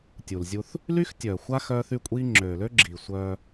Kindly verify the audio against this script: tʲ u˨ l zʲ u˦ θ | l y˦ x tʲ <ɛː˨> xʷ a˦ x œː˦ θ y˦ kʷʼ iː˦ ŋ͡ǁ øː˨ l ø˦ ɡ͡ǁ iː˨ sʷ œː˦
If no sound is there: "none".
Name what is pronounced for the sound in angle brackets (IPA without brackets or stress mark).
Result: œː˨